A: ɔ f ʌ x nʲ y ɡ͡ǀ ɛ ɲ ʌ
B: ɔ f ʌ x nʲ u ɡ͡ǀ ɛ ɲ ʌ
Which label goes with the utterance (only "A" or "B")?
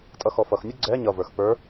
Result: B